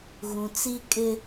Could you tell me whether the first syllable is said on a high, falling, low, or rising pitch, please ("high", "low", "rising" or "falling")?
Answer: low